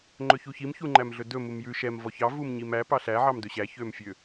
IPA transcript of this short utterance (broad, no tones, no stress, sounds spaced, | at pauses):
ŋ͡ǃ ɵ ç u ç i m ç u ŋ͡ǃ æ m ɮ ɵ d ɵ m u m j ʉ ʃ ɛ m v ɔ ç ɑ v u m ɲ i m æ p ɑ ɬ æ ʕ ɑ m d ɵ ɕ æ ç ø m fʲ ø